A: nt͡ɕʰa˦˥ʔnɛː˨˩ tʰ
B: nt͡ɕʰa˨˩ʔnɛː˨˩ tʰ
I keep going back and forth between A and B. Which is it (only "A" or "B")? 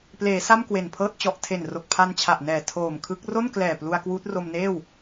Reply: B